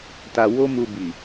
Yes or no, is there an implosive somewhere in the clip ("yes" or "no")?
no